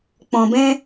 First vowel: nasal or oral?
nasal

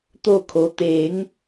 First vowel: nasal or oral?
oral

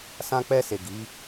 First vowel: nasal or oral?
nasal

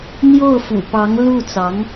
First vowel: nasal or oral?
oral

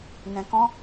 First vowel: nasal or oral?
nasal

